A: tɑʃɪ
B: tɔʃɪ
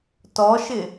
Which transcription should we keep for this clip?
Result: B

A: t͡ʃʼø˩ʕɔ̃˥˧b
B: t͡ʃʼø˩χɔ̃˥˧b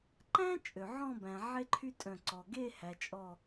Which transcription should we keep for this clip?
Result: A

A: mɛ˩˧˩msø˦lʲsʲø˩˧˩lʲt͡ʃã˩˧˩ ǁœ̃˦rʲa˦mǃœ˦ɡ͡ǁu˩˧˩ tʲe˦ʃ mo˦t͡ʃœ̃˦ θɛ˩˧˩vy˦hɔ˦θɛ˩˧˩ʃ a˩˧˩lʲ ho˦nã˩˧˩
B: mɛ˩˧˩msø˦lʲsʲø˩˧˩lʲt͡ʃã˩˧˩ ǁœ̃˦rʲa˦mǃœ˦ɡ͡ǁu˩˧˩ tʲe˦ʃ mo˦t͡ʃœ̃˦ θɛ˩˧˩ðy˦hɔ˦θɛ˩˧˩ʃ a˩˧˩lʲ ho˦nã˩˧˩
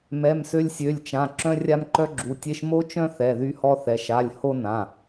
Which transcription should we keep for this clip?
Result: B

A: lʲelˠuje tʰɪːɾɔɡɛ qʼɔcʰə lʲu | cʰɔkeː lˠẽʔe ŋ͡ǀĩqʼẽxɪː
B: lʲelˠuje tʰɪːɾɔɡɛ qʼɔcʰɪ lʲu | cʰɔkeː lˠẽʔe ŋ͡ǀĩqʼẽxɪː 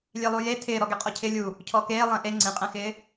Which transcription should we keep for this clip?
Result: B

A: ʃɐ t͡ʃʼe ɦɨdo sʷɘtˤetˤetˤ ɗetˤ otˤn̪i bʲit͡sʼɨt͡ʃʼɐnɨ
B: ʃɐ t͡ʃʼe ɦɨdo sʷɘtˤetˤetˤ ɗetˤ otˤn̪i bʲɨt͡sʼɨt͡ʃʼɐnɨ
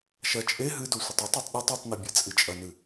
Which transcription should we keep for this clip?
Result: B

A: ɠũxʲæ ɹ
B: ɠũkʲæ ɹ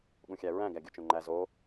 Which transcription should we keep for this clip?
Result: A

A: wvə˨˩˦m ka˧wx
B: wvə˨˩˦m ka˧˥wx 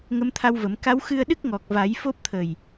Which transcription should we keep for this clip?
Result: B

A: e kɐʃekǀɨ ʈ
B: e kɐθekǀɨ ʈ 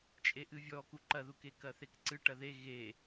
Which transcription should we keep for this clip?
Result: B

